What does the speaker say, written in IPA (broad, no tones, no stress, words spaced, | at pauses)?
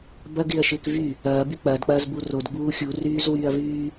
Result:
bɐɡɪːɐ̯ʃɪːk vy | ɐːby k͡pɐːdk͡pɐːzbu rodɡ͡buː xʲuryːzwyːɐ̯vyː